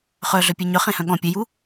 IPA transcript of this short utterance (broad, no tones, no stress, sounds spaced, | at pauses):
χ œ ɮ œ pʲ e ɲ œ χ ẽ h œ̃ ɠ ɔ̃ pʲ e j u